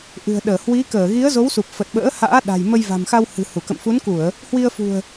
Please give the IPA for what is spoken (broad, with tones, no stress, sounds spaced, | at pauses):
ʔ ɨ̤˨˩ ə̯ ɗ əː˧˩ h w i˨˦ k əː˧˩ ɣ i˨˦ ə̯ z o˨˦ w s u˨˩ p̚ f ə˨˩ t̚ ɓ ə̰ː˧˥ h a̰ː˧˥ ɗ a̤˨˩ j m ə˧ j v a̤˨˩ m x a˧ w h ɨ̤˨˩ h u˧˩ k ə̰˧˨ m f u˨˦ n k u˧˩˨ ə̯ | h w i˧ ə̯ f ṳ˨˩ ə̯